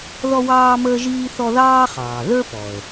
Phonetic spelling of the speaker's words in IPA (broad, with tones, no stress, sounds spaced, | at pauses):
ð ɔ˥ w ɑː˥ m əː˥ ʒ iː˥ θ ɔ˥ ð ɑː˥ χ ɑː˩ ð ə˞˥ p ɔ˩ ə̯